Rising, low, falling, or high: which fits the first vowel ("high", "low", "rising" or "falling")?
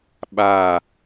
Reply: falling